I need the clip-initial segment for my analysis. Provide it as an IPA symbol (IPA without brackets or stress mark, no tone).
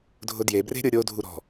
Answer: dʱ